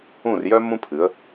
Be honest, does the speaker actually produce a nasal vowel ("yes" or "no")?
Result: yes